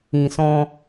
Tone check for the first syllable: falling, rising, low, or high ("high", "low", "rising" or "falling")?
low